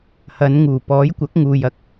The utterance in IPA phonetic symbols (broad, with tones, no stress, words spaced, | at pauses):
hɐ˨˧nŋuː˨˩ pɔː˨˥jkʷɐ˨˥k̚ŋuː˨j ɐ˥k̚